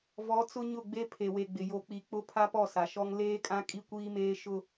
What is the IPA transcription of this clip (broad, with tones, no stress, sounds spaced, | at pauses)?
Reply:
v ɔ˨˦ t͡s ʊ˦ ɲ ʊ˦˨ ɡ͡b e˦ pʰ e˨ w e˨ ɡ͡b ɪ˨ j o˨ k͡p i˨ k͡p ʊ˦ pʰ a˦ p ɔ˦˨ s a˨ ʃ ɔ˦ ŋ l eː˦ kʼ ã˦ kʼ i˦ kʷ iː˦ m eː˦ ʃ ʊ˦